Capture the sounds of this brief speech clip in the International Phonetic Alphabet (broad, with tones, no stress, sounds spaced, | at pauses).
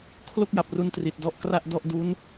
kʰ l o˥˩ k̚ j a˨˩ p̚ r u˧ n t r i˨˩ t̚ d ɔ˦˥ ʔ k r a˥˩ ʔ d ɔ˥˩ ʔ d u˦˥ n